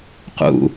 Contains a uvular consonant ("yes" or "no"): yes